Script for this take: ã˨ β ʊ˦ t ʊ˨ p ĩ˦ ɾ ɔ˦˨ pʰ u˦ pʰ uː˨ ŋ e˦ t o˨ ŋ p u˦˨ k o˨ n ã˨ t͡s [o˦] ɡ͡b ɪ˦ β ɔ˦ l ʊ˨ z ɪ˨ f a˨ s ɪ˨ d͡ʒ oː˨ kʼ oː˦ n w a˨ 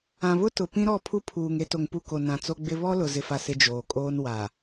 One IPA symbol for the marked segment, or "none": o˦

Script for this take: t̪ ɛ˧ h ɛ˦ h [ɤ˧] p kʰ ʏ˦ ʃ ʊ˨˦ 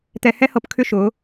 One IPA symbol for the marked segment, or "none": ɤ˧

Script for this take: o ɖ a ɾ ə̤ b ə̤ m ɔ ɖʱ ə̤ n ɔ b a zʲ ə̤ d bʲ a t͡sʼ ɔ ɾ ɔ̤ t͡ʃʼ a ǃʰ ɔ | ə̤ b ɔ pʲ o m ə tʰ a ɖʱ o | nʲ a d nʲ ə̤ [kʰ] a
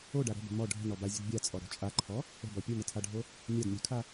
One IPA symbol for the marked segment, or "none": kʰ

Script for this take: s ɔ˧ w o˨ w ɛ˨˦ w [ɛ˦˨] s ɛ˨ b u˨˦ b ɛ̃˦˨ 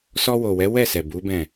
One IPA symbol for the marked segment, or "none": ɛ˦˨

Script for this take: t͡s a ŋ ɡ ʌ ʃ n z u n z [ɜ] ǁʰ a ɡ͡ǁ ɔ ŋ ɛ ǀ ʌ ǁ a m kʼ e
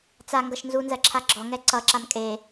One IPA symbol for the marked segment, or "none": ɜ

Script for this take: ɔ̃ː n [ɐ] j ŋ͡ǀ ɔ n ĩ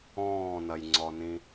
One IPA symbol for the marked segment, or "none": ɐ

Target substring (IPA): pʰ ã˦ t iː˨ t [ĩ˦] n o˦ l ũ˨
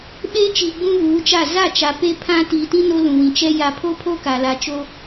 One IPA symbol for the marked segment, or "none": ĩ˦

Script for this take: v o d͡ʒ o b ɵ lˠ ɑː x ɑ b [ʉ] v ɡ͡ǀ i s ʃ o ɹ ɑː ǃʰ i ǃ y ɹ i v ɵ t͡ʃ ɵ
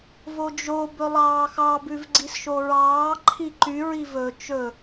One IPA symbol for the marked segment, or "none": ʉ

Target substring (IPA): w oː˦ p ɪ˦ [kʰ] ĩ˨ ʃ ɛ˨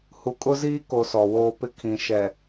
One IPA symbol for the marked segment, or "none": kʰ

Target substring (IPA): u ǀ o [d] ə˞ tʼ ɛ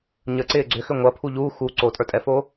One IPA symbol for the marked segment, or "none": tʼ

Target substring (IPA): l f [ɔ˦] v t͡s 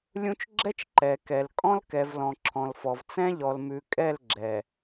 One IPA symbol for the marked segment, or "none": ɔ˨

